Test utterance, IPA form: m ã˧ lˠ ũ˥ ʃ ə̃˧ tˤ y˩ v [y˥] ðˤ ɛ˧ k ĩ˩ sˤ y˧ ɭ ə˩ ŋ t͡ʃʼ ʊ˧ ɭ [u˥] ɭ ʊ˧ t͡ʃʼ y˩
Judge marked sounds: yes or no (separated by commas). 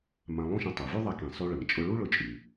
yes, yes